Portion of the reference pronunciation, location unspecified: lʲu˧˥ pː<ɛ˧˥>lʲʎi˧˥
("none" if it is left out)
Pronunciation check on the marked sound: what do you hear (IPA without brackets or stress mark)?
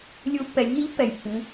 ɛ˩˧